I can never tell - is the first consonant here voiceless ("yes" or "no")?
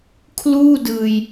yes